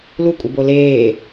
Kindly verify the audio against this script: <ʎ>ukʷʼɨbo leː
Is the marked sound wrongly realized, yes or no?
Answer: yes